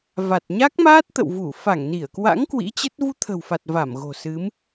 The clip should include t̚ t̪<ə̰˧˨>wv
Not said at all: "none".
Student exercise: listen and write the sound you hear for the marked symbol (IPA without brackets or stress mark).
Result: ə̰˧˨